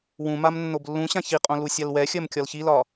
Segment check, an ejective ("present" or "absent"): present